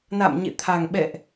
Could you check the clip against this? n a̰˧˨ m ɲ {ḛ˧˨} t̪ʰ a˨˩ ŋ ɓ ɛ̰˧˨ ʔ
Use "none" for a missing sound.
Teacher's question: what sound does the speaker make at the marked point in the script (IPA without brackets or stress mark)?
ḛ˧˨